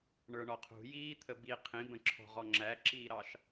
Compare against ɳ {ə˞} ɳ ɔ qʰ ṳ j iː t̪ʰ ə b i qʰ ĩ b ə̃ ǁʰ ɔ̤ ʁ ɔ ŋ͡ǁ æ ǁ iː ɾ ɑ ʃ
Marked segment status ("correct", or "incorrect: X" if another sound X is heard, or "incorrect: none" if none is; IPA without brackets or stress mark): correct